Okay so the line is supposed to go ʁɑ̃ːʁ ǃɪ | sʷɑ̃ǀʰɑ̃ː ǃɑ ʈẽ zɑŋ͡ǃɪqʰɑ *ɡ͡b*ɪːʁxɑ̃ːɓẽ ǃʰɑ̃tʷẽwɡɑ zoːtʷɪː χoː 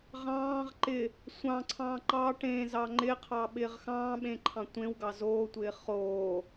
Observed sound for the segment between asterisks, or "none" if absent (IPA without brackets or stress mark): ɓ